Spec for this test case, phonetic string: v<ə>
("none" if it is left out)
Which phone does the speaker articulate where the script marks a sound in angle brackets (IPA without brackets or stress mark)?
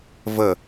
ə